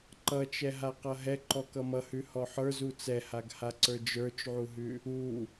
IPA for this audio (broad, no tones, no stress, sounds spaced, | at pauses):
ǃ ʌ t͡ʃ ɛ ɦ a q ʌ ɦ ɛ ǃ ɔ k ʌ m ʌ h ʉ h ɔ ħ ə˞ z u t͡s ɛ h a ɡ h a ǀ ə˞ d͡ʒ ə˞ t͡ʃ ʕ u ɦ ʉ | u